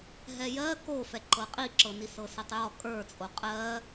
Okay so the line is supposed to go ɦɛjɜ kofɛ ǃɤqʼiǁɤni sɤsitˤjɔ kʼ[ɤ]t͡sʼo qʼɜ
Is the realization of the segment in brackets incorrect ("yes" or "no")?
yes